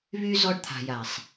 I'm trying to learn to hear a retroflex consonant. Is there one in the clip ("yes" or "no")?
yes